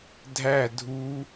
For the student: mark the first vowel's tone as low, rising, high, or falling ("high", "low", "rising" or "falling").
falling